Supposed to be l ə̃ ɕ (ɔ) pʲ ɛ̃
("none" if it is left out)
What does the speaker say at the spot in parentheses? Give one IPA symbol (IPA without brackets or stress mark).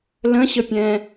ə